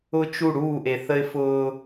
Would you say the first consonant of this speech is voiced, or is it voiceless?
voiceless